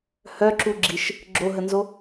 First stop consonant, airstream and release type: click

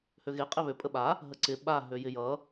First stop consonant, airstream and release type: ejective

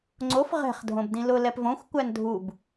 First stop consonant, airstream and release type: click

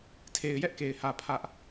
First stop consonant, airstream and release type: aspirated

